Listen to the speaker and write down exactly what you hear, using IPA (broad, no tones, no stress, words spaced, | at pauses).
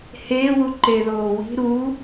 heːwuǃeðoː wi̤ ɾu